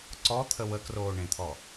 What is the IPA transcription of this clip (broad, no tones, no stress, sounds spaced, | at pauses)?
ǀ ɔ t̪ʰ ə w ə k r oː ɳ ẽ t̪ʰ ɔ